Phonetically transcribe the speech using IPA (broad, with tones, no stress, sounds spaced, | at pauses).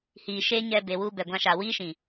h iː˨ ʃ e˦ ɲ ɛ˧ b e˨ w u˧ b ɛ˨ ɡʷ ã˧ ʃ a˨ w iː˦ ʃ ĩ˨